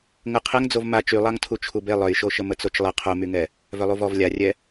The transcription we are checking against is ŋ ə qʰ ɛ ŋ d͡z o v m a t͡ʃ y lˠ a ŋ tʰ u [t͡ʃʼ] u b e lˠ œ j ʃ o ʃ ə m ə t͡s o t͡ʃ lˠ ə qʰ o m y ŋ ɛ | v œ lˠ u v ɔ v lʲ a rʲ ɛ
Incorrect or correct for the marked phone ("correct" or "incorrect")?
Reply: incorrect